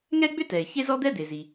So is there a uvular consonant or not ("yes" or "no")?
no